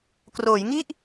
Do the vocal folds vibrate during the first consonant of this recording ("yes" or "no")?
no